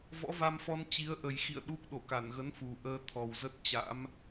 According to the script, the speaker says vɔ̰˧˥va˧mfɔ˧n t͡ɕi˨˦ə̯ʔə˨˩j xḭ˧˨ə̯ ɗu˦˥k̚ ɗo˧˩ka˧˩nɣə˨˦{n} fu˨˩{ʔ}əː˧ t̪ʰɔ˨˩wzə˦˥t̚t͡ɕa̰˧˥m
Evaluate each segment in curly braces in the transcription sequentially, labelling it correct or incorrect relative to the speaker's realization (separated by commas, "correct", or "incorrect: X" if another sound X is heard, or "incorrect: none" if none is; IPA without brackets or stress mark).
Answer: correct, correct